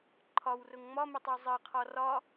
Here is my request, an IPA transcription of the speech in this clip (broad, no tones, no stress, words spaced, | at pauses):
ǃʰɒwrʊŋ ŋ͡mɒmɪtˤu zˤɜqʰɒ rɒ